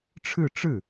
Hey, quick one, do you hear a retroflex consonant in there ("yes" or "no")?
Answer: yes